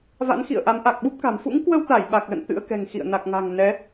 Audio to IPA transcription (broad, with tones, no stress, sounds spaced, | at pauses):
v a̰˧˥ n x ḭ˧˨ ə̯ ʔ a˨˦ m ʔ a˨˩ k̚ ɓ u˦˥ p̚ k a̤˨˩ m f ṵ˧˥ ŋ k w ə˧ w t̪ a˧˩ j ɓ a˨˩ k̚ l ə̰˧˨ n t̪ ɨ̰˧˥ ə̯ k ɛ̤˨˩ ŋ x ḭ˧˨ ə̯ n a˨˩ k̚ ŋ a̤˨˩ ŋ n ɛ˨˦